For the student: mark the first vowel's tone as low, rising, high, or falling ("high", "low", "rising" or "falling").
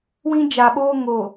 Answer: high